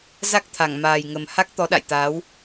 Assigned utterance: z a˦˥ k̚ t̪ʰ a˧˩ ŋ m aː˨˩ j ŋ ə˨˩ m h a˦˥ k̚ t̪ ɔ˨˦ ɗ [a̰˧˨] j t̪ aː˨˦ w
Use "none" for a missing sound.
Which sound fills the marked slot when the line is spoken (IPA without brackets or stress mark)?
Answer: a̰˧˨